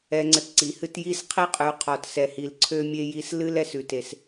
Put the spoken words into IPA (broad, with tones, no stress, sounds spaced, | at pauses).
ɛ˧ ŋ͡ǀ ə˧ t ǀ i˨ h ɨ˦ t j i˦ s qʰ i˦ qʼ ʉ˨ qʰ ɔ˨ t s ɛ˨ h i˨ l ǀʰ ø˦ mʲ e˦ j i˧ s l ɨ˦ l ɛ˨ s ʉ˨ t e˨ s